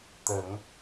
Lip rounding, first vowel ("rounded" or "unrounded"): unrounded